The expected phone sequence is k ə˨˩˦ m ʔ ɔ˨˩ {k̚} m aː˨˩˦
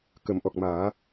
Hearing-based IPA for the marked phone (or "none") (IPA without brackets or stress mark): k̚